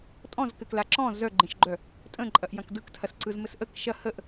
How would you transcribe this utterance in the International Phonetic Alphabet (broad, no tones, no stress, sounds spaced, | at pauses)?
tʼ ɔ̃ z k ɘ k l a ǁ ɔ̃ z œ ɡ͡ǃ ẽ ʃ ɡ͡ǃ œ | tʼ ə̃ ǃʼ ɐ ʔ j ɐ̃ k d ɯ k tʰ ɐ s ǀ ɯ z m ɘ s ʔ ə k ʃ ɐ h ə ʔ